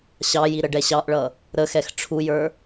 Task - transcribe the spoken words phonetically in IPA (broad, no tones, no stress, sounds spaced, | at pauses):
ɕ ɑ j i ɾ ə ɖ ɛ ɕ ɑ ʔ ɭ ʌ | ɾ ə x ɛ x ʈ͡ʂʰ u j ə˞